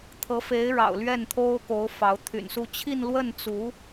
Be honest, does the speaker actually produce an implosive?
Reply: no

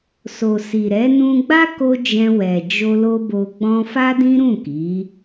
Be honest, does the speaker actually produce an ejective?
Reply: no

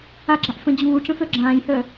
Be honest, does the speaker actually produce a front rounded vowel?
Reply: yes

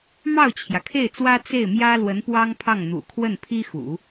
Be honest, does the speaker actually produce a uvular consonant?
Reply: no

